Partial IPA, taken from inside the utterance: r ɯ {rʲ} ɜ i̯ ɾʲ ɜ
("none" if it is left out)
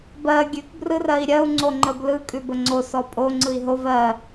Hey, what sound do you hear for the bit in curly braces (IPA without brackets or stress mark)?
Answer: r